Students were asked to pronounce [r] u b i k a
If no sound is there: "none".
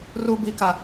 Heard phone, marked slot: r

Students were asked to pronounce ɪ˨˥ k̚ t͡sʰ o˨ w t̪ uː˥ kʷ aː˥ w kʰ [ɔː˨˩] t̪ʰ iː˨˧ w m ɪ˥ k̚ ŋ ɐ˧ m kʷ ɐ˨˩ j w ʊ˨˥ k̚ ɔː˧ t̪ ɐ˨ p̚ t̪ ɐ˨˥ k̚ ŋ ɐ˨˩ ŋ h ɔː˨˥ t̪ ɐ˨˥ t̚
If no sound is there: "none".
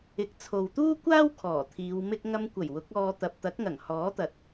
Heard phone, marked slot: ɔː˨˩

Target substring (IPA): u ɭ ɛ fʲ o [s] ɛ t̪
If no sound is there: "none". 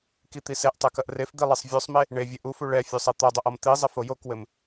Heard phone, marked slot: sˤ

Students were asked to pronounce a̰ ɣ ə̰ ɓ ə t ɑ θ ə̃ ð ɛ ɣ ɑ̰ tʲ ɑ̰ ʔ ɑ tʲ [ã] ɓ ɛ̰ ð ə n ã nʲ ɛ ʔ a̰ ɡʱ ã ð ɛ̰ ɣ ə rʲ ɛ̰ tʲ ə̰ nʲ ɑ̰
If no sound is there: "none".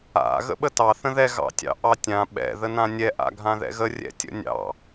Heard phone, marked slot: ã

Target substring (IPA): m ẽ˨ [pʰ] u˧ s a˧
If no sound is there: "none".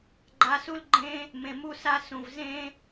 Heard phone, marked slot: m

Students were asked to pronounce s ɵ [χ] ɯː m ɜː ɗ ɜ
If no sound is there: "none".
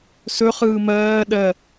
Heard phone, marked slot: χ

